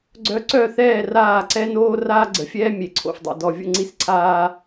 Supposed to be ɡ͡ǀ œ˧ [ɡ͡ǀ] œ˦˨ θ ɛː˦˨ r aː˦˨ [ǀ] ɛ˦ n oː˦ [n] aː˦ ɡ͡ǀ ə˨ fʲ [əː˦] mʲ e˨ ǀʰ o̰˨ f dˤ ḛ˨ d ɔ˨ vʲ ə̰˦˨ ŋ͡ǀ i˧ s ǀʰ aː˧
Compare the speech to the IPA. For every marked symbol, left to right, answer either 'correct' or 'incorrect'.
incorrect, correct, incorrect, incorrect

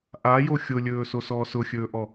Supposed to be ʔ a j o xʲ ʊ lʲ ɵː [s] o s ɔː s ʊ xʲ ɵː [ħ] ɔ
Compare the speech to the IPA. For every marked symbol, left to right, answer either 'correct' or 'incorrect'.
correct, incorrect

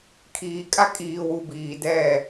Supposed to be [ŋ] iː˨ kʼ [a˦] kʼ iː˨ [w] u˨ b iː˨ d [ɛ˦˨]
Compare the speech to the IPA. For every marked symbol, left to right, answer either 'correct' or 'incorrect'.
incorrect, correct, correct, correct

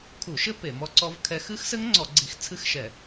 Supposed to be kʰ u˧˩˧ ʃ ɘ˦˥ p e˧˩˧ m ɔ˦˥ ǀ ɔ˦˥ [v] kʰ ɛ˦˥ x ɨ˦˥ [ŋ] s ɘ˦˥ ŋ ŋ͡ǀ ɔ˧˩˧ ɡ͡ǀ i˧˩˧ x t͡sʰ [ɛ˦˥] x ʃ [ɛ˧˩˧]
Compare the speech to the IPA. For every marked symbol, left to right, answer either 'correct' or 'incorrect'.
correct, incorrect, incorrect, correct

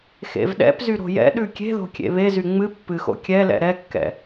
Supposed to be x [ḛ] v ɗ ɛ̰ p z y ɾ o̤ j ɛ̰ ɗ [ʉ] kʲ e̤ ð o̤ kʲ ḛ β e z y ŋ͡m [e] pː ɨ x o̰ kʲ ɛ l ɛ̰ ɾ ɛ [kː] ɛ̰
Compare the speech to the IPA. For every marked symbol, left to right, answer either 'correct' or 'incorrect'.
correct, correct, incorrect, correct

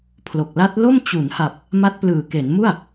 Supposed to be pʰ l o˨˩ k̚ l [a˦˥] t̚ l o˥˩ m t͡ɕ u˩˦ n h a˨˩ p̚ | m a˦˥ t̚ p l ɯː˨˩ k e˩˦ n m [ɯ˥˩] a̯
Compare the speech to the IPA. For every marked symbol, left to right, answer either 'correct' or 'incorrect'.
correct, incorrect

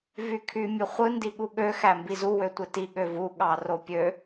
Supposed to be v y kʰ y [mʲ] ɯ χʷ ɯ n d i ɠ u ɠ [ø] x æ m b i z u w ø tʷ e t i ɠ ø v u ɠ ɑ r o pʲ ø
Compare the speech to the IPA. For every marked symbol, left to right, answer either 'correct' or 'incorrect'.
correct, correct

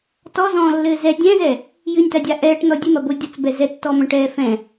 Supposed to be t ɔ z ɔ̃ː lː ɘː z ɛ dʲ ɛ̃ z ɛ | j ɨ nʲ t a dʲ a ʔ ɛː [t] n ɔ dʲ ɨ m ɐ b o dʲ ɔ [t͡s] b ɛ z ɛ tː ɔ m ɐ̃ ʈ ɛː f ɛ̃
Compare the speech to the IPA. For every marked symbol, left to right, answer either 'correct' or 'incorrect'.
incorrect, correct

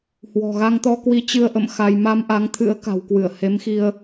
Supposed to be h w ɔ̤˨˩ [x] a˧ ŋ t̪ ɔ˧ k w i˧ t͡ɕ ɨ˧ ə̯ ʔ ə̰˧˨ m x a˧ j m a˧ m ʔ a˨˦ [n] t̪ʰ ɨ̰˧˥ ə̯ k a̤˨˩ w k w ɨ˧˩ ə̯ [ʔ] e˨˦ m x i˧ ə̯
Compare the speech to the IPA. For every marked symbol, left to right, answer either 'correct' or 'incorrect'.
incorrect, incorrect, incorrect

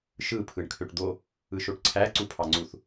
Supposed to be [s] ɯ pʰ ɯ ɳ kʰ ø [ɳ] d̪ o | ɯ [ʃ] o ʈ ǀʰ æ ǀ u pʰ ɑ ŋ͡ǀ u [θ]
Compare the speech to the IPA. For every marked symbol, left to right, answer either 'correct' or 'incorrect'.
incorrect, incorrect, correct, correct

